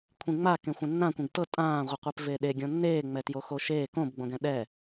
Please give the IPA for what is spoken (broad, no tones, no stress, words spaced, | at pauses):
kʷʰĩŋ͡ma kẽxʷẽnːãkʷĩɡ tɤ tʼãːʁʷiqʷep veɗe ɡʲõnːeːŋ͡mɛ tjoxoʃeː kõbɡ͡bõɡɛ̃ ɗɛ